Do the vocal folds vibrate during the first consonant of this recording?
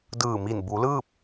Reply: yes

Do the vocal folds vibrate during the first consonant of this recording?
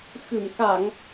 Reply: no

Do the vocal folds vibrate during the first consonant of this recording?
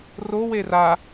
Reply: yes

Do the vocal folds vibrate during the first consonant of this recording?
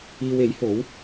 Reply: yes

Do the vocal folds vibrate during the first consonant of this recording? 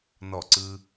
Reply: yes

